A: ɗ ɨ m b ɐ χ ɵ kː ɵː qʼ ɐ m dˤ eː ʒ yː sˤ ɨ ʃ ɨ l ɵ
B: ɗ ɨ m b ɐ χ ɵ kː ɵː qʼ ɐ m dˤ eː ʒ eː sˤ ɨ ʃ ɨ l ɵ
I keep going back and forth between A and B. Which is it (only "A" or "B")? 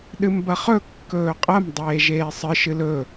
B